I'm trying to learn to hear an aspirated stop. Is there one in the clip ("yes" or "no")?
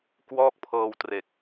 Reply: yes